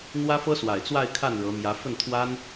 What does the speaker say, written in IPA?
n̪ w ä˥ f ɤ˥ s w a˨˩ ɪ̯ t͡s w a˥˧ ɪ̯ kʰ a˥˩ n ɻ ɤ˧˥ m j ä˧˥ f ə˥˩ n t̪ʰ w a˥ n

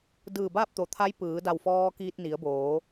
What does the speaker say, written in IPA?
d ɯː˧˩ b aː˥˨ p̚ t̪ o˩˧ t̪ʰ a˧˥ j p ɯː˩˧ d a˧˩ w f ɔː˧ k iː˧ t̚ n i˩˧ ə̯ b oː˩˧

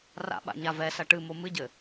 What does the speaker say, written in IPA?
r a̰ ɓ a̰ ɲ a v ɛ s ɐ ʈ ɨ m o m ɨ ɟ ɘ

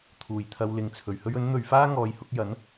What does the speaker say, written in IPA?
t̪ʰ uː˨˩ j t̪ʰ ɐ˨ w l ɪ˨˧ ŋ t͡sʰ ɵ˨ ɥ h ɵ˥ ɥ ɵ˨˥ n n̪ ɵ˨ ɥ f aː˥ ŋ ɔː˨˧ j h ʊ˨˥ k̚ j ɐ˨˥ n

